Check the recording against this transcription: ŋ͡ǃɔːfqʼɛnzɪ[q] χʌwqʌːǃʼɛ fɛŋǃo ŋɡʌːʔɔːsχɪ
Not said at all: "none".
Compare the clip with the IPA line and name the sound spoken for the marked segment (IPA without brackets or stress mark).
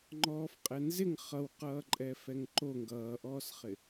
ŋ